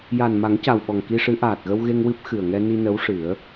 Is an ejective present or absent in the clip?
absent